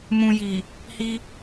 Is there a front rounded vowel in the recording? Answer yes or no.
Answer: no